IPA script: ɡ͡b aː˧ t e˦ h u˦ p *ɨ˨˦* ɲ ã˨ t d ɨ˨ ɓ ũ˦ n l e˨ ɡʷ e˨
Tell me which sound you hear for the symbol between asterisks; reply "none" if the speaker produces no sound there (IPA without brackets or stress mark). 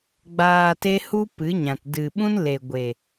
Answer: ɨ˨˦